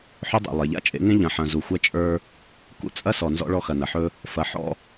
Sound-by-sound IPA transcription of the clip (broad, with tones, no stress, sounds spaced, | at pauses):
ħ ɵ˦ dˤ ḛ˨ lˠ e˨ ʎ a̰˦ t͡ʃʼ ḛ˨˦ ŋ ẽ˦ ʎ ɐ̃˨ ħ ɐ̃˨ z u˨ xʷ ɐ˦ t͡ʃʼ ə˞˦ | k ṵ˦ t͡sʼ ɐ˦ s ɔ˨ n z ɔ̰˦ ɭ ɔ˦ x ɐ˨ n ɐ˨ ħ ɵ˦ | f ɐ˨˦ ħ ɔ̰˦